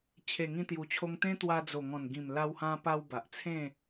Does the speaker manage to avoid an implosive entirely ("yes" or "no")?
yes